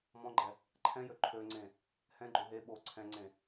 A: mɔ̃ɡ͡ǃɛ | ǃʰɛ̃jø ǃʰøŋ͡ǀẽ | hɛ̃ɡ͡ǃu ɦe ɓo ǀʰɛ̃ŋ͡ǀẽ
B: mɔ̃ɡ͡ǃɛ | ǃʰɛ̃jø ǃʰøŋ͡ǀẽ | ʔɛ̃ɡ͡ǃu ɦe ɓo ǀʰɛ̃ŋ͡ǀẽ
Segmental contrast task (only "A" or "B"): A